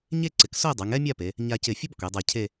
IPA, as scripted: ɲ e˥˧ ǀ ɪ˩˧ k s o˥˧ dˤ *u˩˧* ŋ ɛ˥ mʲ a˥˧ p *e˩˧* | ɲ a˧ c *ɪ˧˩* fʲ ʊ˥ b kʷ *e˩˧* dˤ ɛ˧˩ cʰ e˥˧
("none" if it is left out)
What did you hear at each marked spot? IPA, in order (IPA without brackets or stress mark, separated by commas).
u˩˧, e˩˧, ɪ˧˩, e˩˧